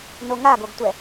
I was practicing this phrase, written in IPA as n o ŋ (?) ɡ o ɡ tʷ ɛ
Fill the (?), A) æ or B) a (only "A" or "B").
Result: B